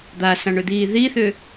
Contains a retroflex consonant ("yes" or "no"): yes